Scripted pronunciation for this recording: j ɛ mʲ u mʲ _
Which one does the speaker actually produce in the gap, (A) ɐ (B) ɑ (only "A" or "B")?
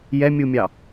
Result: B